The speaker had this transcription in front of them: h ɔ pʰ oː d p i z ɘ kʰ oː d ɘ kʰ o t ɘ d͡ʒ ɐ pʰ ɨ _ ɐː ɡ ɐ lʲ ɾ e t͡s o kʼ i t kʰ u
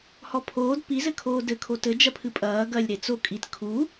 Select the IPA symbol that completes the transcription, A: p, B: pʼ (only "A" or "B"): B